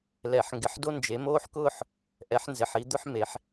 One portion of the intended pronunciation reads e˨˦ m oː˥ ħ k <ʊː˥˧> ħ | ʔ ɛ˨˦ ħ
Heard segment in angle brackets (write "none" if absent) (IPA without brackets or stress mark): ʊː˥˧